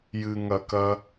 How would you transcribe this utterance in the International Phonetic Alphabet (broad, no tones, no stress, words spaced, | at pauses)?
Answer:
jɨŋɐkɐ